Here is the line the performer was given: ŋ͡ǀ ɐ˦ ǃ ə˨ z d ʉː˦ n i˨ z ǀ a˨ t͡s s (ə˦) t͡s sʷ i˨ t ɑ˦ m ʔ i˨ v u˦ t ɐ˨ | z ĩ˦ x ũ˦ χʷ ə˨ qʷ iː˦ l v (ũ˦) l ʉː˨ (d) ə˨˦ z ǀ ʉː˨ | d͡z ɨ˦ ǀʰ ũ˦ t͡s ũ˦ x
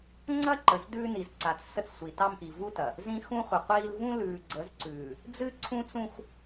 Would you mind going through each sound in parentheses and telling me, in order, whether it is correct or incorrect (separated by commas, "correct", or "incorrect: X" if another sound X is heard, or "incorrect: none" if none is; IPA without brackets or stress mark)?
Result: correct, correct, incorrect: ɡ͡ǀ